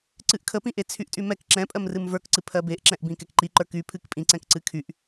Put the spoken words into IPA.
ǀ ɨ ʔ kʰ ə p ĩ ʔ e t͡sʰ y ʔ tʼ y m ɛ k ǁ ɛ̃ pʼ ɜ m r ɨ m v ə˞ k ǀ ɨ pʰ ɜ b e ʔ ǁ ɛ̃ ʔ b ĩ k ɛ k ǃ i ǃ ə˞ k y pʰ ɨ k pʼ ĩ ǀ ɛ̃ k ǀ ɨ kʰ y ʔ

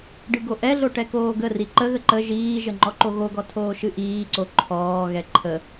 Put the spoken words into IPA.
ɖ ɨ ɡ o ʔ ɛ ɮ o ʈ ɛ k oː ɡ ə r i ǃ ə ɣ ə ǃ ə ʒ iː ʒ ə ŋ͡ǃ ɔ ǃ o ɣ o ɡ ɔ tʰ oː ʃ ɨ ʔ iː ǀ o ǃʰ ɔː ɣ ɛ ǃʰ ə

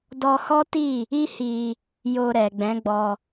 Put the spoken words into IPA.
d ɔ˧ h ɔ˦ t i˦˨ | i˦ h i˧ | j o˧ ɾ ɛ˨ ɡ͡b ɛ̃˨˦ ɡ͡b ɔ˧

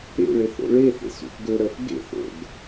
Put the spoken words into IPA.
ḛ ɭ e θ o̰ ɭ e θ ḛ s ṵ θ ɡ ɵ ɾ œ f ɡ ḛ θ ɾ o̰ ɡ

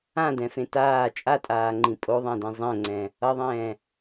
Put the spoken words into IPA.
ã d ɛ̃ f ẽ t aː t͡ʃʼ a tʼ aː ŋ͡ǃ ĩ pʼ o ðˤ ã d ĩ zˤ ɛ̃ ŋ͡ǀ ɛ̃ | ʌ ðˤ ɛ̃ː

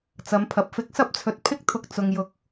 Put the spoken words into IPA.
t͡s ɐ˨˧ m pʰ ɐ˨ p̚ f ɪ˨˥ k̚ s ɐ˧ p̚ t͡sʰ ɵ˨ t̚ pʰ ɪ˥ k̚ t̪ʰ ʊ˧ k̚ t͡s ʊ˨ ŋ j ʊ˨ k̚

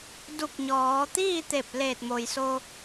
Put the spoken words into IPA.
d u˧˩ k̚ ɲ ɔː˩˧ t̪ iː˥˨ t̪ e˧˩ p̚ l eː˧˩ t̚ m o˩ j s o˧

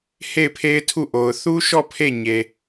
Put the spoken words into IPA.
h e˦˨ ɪ̯ pʰ e˦ ɪ̯ tʰ u˦˨ ʔ o˨ ʊ̯ θ u˦ ʃ ɔ˦˨ pʰ e˦˨ ɲ e˨

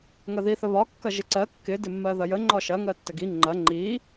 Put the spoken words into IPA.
ŋ ɐ ð i θ ə β ɒ kː ɐ ʒ ɪ ǀ ɜ kː ɪ d ɪ mː ɜ ð ɐ j ə ŋ͡ǃ ɒ ʃ ɐ ŋ ɜ tː ə ɡ i ŋ͡ǃ ɐ ŋ͡ǃ i

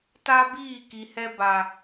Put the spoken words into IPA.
t a˦ b iː˦˨ k i˨ h ɛ˦ b a˨

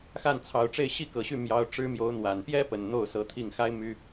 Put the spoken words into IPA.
x a˥˩ n t͡sʰ ɑ˨˩ ʊ̯ ʈ͡ʂ e˥˧ ɪ̯ ɕ i˥˩ k ɤ˨˩ ɕ y˥˩ m j ɑ˧˥ ʊ̯ ʈ͡ʂ ɻ̩˥ m j o˧˥ ʊ̯ n̪ w a˨˩ n p j ɛ˥ p ə˨˩ n n̪ o˥˩ ʊ̯ s ɤ˧˥ t̪ʰ i˥˩ ŋ x a˥ ɪ̯ m y˥

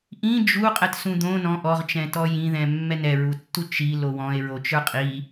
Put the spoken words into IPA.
ʔ ĩ d͡ʒ u qʼ ɛ t s ũ d̪ õ n ɔ̃ ʔ ɔ ʁ t͡ʃ ɛ̃ t ɔ j ĩ ð ɛ̃ mː ɛ n ɛ ɹ u tː u t͡ʃ i l o w ɔ̃ e̯ ɹ o t͡ʃ ə˞ qʼ i

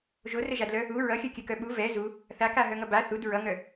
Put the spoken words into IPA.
ʒ o r ɘ ʒ a d l œ | u ɹ ʌ xʲ œ kʲ ɘ k œ ɓ u v ɛ z u | θ a k a ɦ œ ŋ ʌ b a θ u d ɹ ʌ ŋ œ

